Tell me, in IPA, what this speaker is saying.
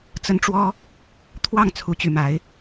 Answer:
t͡sə˦nʈ͡ʂwɔ˦ | t̪ʰwɑ˥˨ŋ t͡sʰu˨˦t͡ɕy˨˩ma˨˦ɪ̯

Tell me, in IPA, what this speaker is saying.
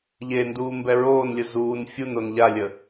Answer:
ʎenduː mbɛɹoːnlʲə zuːn fʲunon ʎalʲə

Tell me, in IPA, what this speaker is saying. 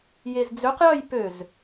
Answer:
jezd͡zøqjœj pøz

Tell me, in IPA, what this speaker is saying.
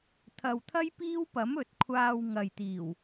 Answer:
t̪ʰɐ˨wt̪ʰɐ˥jpiː˥wpɐ˨˥m ɵ˨t̚kʷʰaː˧w ŋɐ˨jt̪iː˨˩w

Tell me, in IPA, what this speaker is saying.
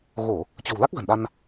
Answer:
ɣo˧˩˨ | t͡ɕə̤˨˩w la˦˥k̚ ɣə̤˨˩nɗa˧n

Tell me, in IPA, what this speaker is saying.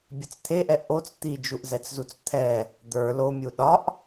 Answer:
bʲət͡st̪ʰeʔɛ ʔot͡s t̪id͡ʒuʔzɛt͡szut͡s t̪ʰɛ | d̪ə˞ lomʲu ɗɒʔ

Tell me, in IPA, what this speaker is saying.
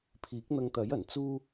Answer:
pʰiː˨˥k̚n̪ɐ˧ŋt̪ɐ˨˥jɐ˨˩n t͡suː˥

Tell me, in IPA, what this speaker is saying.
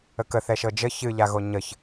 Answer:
əkəθɛ ʃɤd͡ʒə çɨʎaɣo ɲəç

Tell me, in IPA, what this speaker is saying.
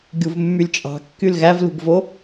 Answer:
ɡʲuvmːylʲt͡ʃʼɑ̤ kːylɣævlṳɡvo

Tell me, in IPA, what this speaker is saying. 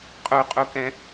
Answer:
qʼuqʼukɛ̃

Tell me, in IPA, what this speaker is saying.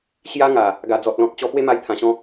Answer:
ɕja˦ŋa˨˩ | ɡa˨˩d͡zɔ˨t̚lɔ̃˨t̚t͡ɕɔ˧ pwe˦ma˧jt̪ʰã˨˩ɕɔ̃˧

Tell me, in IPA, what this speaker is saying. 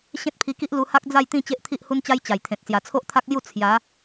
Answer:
ɕẽ˦t̚pʰi˧ki˦ʔ lu˧ha˦k̚ d͡za˥˧jt̪ĩ˥˧ t͡ɕe˦ʔt̪ʰi˦ʔhu˦nt͡ɕa˦j t͡ɕa˨˩jt̪ʰẽ˨t̚ sja˨˩t͡sʰo˦ʔt̪ʰa˦k̚lju˥˧ t͡sʰja˨˦

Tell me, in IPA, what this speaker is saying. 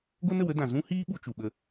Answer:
ɡo˦nə˨wə˦dã˨ zũ˦hiː˦ ɓu˧t͡ʃu˨ɓə˧

